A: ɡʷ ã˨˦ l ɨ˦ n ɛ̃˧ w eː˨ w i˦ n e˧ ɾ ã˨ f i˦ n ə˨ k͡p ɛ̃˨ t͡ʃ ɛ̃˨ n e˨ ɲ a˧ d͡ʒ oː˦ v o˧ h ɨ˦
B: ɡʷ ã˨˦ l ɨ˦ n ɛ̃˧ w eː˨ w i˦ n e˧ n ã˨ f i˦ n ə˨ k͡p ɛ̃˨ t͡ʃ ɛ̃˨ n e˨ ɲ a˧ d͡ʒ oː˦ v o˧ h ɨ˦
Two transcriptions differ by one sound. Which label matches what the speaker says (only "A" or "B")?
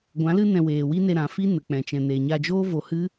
A